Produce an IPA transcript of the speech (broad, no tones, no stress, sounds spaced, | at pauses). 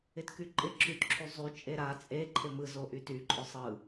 ɪ t k y ǃʼ ɪ ǁ y t ǁʰ y zˤ y t͡ʃʼ e ɾ a t͡sʼ e ǃʰ ɪ m ɯ z o ʔ y t y ǃʼ ʊ sˤ ɯ